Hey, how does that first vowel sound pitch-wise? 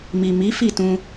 low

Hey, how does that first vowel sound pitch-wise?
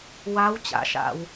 rising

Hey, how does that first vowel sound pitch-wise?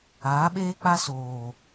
rising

